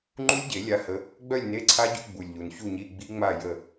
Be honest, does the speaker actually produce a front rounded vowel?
yes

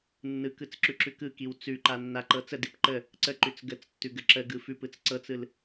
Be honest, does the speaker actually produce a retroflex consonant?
no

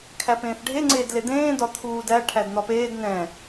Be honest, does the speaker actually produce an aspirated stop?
yes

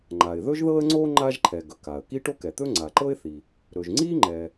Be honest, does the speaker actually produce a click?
yes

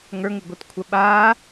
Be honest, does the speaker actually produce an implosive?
yes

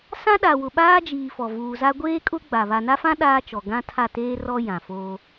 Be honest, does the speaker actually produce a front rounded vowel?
no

